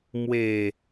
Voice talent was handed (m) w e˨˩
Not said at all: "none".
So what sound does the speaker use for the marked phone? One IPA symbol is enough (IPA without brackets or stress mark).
m